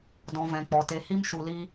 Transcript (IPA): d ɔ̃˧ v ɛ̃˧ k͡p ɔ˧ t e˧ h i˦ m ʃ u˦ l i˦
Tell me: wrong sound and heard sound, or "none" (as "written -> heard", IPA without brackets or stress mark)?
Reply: none